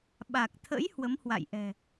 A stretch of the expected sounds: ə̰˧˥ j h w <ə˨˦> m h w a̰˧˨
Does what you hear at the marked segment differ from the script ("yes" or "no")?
no